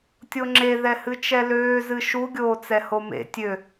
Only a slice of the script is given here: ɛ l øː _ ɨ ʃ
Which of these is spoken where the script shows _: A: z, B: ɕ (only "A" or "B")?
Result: A